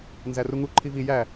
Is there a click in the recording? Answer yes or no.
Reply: yes